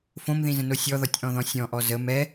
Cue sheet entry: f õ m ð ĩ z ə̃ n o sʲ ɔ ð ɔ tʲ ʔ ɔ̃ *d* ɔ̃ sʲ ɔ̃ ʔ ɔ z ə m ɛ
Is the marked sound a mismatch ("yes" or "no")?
yes